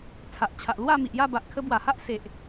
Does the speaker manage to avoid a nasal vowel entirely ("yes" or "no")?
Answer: yes